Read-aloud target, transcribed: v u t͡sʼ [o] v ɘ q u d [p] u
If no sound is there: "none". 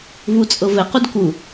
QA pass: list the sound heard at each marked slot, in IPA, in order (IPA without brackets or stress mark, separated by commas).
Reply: ɤ, k